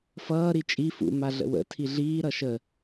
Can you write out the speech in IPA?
f ʌː ɾ i t͡ʃʼ i f ṵ m a ɮ ə̰ w ə̰ tʰ i ɮ iː ɾ ʌ ʃ ə

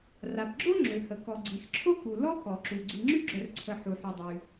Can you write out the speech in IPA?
r a˩ p ɡ͡ǁ o˥ ŋ͡ǁ ø˩ h ə˩ k ɔ˩ ɡ͡ǀ i˩ x ǁʰ o˥ k u˩ l ɔ˥ k ɔ˩ ǁ u˩ ɡ͡ǀ i˩ ŋ͡ǁ y˥ ɡ͡ǁ œ˩ r ǀʰ ə˩ ħ u˩ ħ y˩ dˤ y˩

